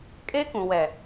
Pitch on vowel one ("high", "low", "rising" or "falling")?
high